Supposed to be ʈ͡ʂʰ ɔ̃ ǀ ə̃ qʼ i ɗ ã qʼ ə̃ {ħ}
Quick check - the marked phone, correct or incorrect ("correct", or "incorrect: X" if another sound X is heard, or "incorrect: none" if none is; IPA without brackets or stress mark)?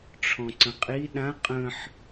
correct